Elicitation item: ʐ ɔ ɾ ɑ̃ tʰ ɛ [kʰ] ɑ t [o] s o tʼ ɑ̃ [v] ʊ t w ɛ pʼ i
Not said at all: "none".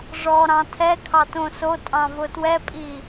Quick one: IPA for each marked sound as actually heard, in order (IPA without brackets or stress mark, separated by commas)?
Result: kʰ, õ, v